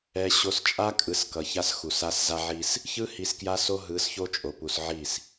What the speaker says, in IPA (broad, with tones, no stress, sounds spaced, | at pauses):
ɛ˨ ɕ o˨ s t͡ʃʼ a˦ kʼ ɯ˨ s k ʌ˨ ç a˦ s x u˨ s a˦ s z a˦ ʕ i˦ s | ç ɯ˦ h i˨ s k j a˦ s o˦ ɦ ɯ˨˦ s ç o˦ t͡ʃʼ o˨ p u˨ s ʕ i˦˨ s